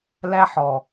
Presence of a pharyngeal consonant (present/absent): present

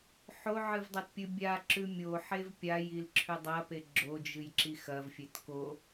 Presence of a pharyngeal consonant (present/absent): present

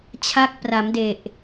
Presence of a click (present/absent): absent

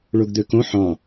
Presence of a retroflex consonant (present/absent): present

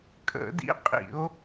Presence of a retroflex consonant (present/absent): absent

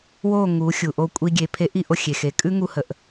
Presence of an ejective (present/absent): present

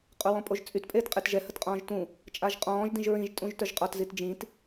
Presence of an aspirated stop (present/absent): absent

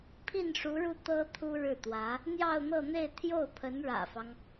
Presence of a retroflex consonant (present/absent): present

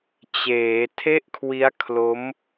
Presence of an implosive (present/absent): absent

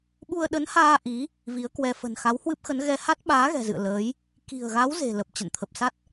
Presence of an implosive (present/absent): present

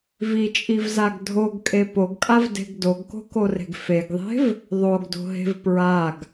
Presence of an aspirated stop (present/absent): absent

